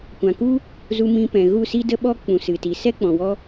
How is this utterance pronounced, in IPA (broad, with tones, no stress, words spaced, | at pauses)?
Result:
kʷã˨ku˦ | zu˧mĩ˧ pɛ̃˨ɣu˦˨si˦də˦ ɓɔ˦ k͡pũ˨sɨ˨ti˨ sɛ˦ k͡pɔ̃˨wɔ˧